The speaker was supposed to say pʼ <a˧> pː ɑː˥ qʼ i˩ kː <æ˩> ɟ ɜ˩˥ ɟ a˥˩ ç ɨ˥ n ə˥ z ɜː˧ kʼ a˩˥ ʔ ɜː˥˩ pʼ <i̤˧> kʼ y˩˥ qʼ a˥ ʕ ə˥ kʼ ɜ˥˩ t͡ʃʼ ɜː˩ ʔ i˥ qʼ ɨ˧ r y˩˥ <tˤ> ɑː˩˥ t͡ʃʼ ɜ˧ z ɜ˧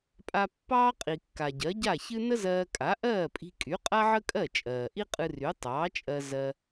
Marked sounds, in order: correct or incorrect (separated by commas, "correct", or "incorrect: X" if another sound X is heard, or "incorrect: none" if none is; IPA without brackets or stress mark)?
correct, incorrect: a˩, correct, correct